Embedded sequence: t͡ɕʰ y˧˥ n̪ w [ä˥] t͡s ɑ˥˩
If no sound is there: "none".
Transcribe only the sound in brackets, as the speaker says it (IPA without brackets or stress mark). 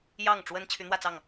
ä˥˧